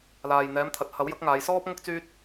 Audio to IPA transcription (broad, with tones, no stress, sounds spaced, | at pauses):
l aː˨ j n̪ ɛː˨˧ m t̪ʰ ɐ˨ t̚ h ɐ˨˥ w j ɐ˨˥ k̚ ŋ aː˨˧ j s ɔː˥ p̚ ŋ ʊ˥ k̚ t͡s yː˥ t̚